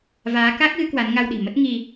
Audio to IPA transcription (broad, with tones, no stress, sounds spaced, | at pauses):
v aː˨˦ k a˦˥ k̚ ɣ ɨ˨˦ k w a˨˦ n ŋ a˧ w ɗ i̤˨˩ m ə˦˥ t̚ ŋ i˧